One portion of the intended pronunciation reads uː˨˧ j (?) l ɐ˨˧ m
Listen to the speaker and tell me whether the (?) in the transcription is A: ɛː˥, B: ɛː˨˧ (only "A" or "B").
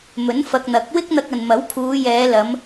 B